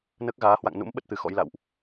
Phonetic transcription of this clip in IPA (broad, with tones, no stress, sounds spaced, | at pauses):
n əː˦˥ k̚ ɣ aː˨˦ h w a̰˧˨ ŋ n ṵ˧˥ m ɓ ə˦˥ t̚ t̪ ɨ˨˩ x ɔ̰˧˥ j l a̰˧˨ w ʔ